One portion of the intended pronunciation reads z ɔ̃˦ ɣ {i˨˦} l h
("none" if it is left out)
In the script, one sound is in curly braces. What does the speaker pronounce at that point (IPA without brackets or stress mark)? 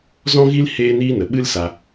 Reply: i˦